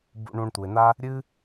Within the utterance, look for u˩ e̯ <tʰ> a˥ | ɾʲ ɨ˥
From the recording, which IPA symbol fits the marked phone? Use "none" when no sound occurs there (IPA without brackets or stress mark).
n̪